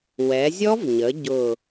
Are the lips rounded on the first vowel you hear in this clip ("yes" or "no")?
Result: no